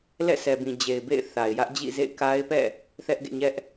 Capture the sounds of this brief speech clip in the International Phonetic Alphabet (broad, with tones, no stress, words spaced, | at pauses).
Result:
lɛ̰˦˨sɛ˨bĩ˨ d͡ʑe˨ɪ̯bḛ˦˨ɪ̯ θa˨ɪ̯jä˦ʔ d͡ʑḭ˦˨zḛ˦˨ɪ̯ ka˦ɪ̯pɛ̰˦˨ | θɛ˦ʔɡḛ˦˨ɲɛ˦ʔ